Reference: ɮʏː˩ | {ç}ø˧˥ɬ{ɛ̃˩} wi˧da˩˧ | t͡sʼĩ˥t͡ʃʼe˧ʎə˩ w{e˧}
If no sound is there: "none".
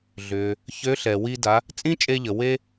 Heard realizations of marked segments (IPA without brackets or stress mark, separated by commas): ç, ɛ˩, e˧